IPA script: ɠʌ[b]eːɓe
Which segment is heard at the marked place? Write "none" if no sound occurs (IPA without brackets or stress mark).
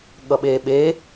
ɓ